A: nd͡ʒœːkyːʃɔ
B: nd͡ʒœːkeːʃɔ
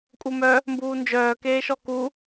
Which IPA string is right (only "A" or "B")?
B